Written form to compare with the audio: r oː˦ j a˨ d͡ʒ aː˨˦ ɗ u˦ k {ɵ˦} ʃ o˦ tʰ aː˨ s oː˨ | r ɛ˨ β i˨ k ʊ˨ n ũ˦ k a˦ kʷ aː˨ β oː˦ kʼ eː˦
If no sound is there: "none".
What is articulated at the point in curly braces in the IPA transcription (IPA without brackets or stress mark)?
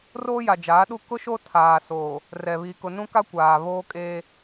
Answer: ʊ˦